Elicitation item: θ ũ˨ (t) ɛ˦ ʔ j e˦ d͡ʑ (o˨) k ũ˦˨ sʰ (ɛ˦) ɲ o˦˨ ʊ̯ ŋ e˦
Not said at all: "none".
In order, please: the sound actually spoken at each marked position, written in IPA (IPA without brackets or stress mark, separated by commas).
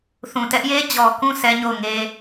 t, ɔ˨, ɛ˦